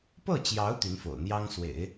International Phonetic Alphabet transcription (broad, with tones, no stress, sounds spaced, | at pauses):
p ɤ˥˩ t͡ɕ j ɑ˧˥ ʊ̯ t̪ y˧˥ n f o̰˨˩ ʊ̯ n̪ j ɑ˥ ŋ s w ḛ˨˩˦ ɪ̯